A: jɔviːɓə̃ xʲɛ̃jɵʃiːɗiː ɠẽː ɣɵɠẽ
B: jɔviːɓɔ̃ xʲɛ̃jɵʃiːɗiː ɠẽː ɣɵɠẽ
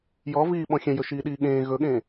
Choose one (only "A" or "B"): B